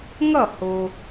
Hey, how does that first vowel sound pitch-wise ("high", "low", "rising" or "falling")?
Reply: falling